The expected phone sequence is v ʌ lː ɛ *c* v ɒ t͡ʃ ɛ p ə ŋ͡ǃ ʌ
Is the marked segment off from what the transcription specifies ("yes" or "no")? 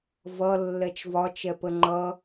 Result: yes